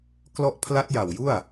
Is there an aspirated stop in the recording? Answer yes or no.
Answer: yes